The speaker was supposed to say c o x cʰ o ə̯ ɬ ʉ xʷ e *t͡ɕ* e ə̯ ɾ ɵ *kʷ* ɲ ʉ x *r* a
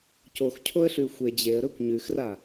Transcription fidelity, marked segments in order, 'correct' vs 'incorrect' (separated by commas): incorrect, correct, correct